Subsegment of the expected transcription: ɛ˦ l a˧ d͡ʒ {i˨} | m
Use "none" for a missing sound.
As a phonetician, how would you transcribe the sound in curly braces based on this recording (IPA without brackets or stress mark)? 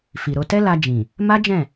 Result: ĩ˨